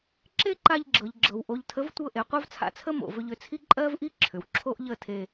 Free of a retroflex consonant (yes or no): yes